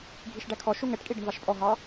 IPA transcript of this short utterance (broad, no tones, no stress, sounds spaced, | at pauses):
ɡʱ i ʃ ɖ æ kʰ ɔ ʃ u ŋ ɛ ʈ kʼ i ɖ ɪ ɳ v ɑ ʃ pʼ ɔ ɦ ɑ